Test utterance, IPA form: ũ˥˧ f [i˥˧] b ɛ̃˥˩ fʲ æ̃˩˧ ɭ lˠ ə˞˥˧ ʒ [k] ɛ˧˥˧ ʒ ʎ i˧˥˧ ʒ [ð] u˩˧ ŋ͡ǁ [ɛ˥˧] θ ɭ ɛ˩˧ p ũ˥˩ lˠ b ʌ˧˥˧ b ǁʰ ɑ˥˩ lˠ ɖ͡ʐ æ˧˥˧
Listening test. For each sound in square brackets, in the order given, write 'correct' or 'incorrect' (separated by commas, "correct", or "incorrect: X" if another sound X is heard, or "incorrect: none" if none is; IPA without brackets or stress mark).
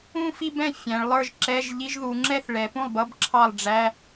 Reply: correct, incorrect: ǁ, correct, correct